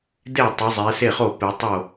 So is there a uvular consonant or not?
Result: yes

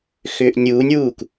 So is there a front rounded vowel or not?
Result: yes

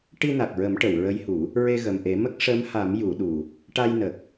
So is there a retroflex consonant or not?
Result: yes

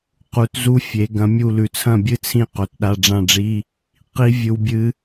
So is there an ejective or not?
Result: no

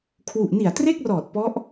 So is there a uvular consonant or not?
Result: no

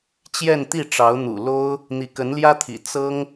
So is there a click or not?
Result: no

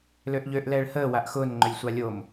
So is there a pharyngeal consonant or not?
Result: no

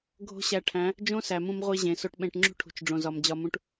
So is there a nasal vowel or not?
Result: yes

